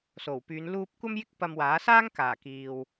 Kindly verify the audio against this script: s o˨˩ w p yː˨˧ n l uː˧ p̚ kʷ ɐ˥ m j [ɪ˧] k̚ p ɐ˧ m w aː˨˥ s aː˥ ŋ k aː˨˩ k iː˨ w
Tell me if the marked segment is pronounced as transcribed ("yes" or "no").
no